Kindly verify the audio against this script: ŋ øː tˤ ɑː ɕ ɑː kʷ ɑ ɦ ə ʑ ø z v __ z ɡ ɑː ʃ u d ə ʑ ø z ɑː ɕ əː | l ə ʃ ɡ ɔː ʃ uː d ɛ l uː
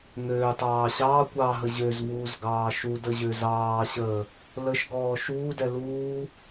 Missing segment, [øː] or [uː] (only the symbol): uː